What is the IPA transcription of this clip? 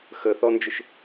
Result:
x ə θ ɔ n d͡ʒ ɪ ʃ

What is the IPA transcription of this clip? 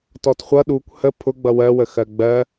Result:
t ɔ t χʷ ʌ ɗ u kʷ h ə pʰ ʊ ɡ͡b ʌ w ɜ w ə x ɜ ɡ͡b ɜ

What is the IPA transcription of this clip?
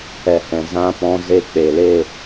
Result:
ɛ˨ h ɛ̃˨ z ã˧ p ɔ̃˧ z e˧ k͡p e˨ l e˦˨

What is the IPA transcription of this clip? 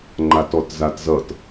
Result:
ŋ͡ǃ a t ɔ t z a t z ʌ t

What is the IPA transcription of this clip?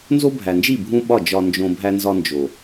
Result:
n z o˦ bʱ æ˨ n d͡ʒ i˦˨ bʱ ũ˦ ɓ ɒ˦˨ d͡ʒ ɒ˧ n d͡ʒ õ˧ bʱ æ˦ n z ɒ˦ n d͡ʒ o˨

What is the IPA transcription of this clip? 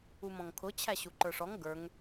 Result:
u m ɔ̃ ŋ kʰ ʊ t͡ɕʰ æ ɕ u ǃ ə˞ ʂ ɔ ŋ ɡ ə˞ ŋ

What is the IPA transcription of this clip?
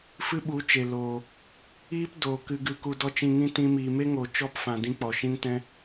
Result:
f ɨ˦ ɓ u˨˦ t͡ʃ e˨ l oː˨ | iː˦ p d oː˨ k ɨ˧ ɡ ɨ˧ k u˧ d ɔ˦ t͡ʃ ĩ˧ ŋ ĩ˦ t ĩ˦ m iː˧ m e˦ ŋ oː˨ t͡ʃ ɔ˦ p f ã˨ d ĩ˧ k͡p ɔ˨ ʃ ĩ˦ n t ɛ̃˦

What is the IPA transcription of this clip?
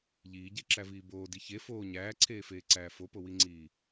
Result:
ʎ iː ɟ e ǁ æ v iː b oː d i ç e f oː ɲ æː ǀʰ eː f eː ǀ æː f o p o w i ŋ͡ǀ iː

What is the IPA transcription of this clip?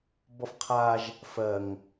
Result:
b ɔ f qʰ a ʒ | f ɜ ŋ

